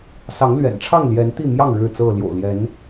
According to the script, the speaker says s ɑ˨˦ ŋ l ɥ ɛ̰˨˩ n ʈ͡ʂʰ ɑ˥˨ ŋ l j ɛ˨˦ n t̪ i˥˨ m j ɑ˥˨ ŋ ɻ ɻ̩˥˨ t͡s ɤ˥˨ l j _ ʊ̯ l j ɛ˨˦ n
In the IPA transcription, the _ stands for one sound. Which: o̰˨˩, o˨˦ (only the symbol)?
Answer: o̰˨˩